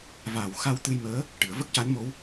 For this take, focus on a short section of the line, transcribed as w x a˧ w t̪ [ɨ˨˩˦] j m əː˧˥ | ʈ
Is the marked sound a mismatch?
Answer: yes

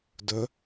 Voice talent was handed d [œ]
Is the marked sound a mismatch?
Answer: no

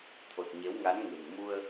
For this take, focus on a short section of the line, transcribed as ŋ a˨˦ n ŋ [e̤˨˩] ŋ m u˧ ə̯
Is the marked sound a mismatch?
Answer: no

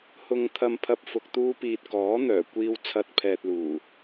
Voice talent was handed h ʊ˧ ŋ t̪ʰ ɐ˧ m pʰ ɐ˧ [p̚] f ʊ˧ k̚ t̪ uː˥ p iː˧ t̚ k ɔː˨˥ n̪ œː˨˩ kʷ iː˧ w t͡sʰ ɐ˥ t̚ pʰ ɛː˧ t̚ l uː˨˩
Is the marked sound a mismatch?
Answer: no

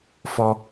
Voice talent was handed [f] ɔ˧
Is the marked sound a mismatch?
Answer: no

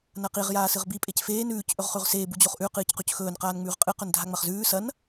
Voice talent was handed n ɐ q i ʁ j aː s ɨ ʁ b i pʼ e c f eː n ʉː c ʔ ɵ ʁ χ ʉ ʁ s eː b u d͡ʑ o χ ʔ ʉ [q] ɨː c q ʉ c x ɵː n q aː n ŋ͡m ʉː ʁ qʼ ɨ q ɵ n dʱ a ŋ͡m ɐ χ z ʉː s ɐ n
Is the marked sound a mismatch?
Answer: no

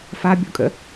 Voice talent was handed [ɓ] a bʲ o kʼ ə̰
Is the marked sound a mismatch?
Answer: yes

